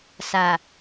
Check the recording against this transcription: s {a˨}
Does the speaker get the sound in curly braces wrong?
no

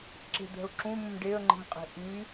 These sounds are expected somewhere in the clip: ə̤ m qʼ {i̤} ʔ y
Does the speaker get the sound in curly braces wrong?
yes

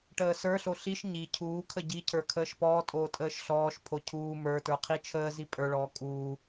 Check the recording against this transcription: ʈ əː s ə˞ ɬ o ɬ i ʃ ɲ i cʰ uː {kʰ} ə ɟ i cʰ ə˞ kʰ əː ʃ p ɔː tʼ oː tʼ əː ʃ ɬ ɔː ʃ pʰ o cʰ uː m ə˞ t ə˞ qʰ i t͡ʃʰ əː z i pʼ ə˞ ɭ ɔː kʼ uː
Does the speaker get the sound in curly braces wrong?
no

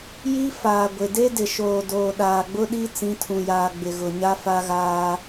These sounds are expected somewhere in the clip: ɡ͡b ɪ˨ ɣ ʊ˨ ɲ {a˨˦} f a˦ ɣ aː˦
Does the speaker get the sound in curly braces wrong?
yes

